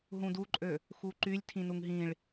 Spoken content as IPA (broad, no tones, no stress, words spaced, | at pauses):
ɦũduǃʼø | xuǃylʲ tʰĩnuŋɦĩɭ